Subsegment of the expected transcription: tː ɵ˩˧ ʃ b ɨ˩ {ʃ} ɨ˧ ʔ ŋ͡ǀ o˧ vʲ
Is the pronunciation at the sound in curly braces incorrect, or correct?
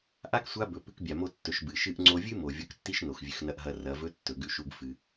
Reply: correct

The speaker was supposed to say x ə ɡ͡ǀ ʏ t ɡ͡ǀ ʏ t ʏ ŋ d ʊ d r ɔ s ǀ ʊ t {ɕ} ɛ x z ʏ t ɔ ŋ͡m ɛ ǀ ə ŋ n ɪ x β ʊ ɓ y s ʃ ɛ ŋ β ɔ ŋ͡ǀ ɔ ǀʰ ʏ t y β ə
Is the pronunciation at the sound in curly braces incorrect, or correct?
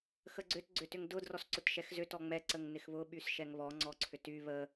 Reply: incorrect: ʃ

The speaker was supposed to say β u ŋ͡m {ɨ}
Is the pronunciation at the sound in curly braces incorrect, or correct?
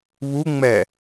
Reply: incorrect: ɛ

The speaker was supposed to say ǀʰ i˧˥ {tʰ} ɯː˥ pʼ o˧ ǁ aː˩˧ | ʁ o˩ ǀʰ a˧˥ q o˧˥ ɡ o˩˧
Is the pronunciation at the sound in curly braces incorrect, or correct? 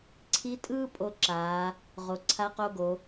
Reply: incorrect: tʼ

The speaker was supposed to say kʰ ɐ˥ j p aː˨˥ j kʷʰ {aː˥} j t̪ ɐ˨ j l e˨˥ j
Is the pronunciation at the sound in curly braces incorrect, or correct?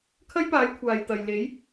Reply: incorrect: aː˨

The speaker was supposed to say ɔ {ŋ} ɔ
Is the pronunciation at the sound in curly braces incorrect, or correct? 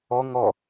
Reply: correct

